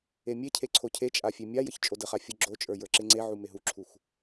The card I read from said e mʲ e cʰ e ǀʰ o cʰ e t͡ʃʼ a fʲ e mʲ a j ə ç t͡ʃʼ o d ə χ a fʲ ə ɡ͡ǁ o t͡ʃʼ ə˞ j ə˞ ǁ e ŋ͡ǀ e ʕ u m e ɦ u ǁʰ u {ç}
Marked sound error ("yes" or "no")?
yes